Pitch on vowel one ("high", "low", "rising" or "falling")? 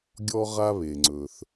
high